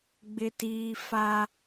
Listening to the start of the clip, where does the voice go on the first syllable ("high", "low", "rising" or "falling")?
high